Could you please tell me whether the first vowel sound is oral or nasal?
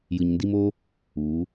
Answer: oral